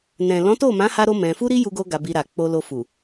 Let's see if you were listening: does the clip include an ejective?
no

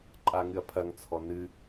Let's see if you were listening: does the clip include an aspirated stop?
yes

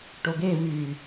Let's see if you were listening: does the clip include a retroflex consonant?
yes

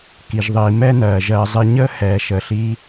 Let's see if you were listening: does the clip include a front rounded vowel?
no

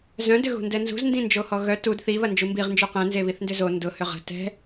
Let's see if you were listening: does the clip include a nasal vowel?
yes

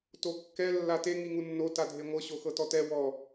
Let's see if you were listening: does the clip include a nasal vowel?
no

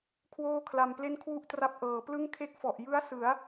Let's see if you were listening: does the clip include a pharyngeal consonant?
no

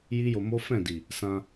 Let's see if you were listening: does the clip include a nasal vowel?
yes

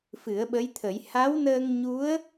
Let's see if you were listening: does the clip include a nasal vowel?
no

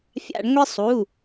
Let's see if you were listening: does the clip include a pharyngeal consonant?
no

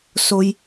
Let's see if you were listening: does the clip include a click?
no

